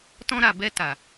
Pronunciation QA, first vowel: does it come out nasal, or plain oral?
nasal